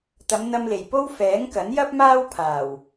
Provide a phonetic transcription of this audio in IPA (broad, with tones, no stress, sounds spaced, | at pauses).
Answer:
t̪ ɐ˨˧ m n̪ ɐ˧ m l e˨˩ j p o˥ w f ɛː˨˥ ŋ k ɐ˨˥ n j ɐ˥ p̚ m aː˥ w pʰ aː˨˩ w